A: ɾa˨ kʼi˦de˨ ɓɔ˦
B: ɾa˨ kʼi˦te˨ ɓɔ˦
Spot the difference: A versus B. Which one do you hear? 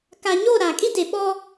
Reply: A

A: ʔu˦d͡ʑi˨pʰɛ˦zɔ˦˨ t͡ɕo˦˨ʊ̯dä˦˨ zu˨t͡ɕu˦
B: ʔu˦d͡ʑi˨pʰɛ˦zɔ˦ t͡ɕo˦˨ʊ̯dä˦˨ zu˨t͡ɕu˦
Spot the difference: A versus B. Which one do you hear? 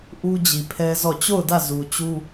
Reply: A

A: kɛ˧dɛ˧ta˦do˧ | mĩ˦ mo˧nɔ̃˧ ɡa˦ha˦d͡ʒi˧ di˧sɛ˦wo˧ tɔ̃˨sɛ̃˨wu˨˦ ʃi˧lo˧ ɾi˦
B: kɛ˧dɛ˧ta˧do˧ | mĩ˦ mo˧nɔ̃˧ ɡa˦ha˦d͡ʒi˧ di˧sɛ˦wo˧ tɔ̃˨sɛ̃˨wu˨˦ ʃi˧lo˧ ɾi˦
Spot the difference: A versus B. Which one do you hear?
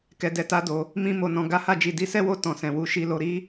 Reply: A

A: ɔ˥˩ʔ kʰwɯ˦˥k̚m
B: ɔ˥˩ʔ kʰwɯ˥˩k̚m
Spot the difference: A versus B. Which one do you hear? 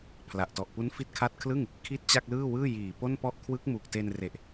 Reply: A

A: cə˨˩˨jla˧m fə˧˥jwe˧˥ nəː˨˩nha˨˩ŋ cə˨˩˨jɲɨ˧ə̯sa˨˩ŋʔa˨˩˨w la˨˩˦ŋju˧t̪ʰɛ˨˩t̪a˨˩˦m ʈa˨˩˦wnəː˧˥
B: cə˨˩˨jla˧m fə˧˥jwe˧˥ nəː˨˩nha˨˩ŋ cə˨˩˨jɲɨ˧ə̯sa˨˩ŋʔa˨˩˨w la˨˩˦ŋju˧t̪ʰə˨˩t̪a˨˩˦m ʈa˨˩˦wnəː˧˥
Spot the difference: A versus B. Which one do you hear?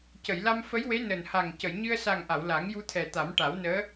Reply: A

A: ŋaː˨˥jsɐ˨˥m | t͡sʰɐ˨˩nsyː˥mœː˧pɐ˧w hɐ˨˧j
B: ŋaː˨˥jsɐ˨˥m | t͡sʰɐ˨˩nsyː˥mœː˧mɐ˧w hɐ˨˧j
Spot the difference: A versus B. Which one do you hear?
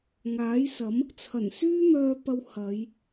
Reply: A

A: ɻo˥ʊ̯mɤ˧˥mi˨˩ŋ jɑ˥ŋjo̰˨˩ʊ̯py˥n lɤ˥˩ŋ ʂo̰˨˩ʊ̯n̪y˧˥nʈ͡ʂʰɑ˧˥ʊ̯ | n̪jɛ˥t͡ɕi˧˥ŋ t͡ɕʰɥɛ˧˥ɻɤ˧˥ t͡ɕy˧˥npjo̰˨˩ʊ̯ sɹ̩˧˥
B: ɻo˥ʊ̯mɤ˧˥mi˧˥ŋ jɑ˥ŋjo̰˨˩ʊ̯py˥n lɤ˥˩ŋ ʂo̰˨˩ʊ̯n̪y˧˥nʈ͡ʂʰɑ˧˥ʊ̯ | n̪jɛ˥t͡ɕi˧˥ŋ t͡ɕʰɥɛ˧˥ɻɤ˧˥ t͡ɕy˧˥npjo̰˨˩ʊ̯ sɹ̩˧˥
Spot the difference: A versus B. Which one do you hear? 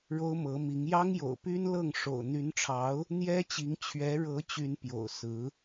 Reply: B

